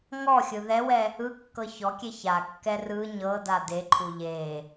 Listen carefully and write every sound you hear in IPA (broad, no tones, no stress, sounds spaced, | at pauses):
ŋ ɔ xʲ ɯ ð ɛ w ɛ | ɯ kː ɤ ç ɔ kʲ e ç a kː ɛ r ɯ ɲ ɤ d a d e ǃʰ u ʎ e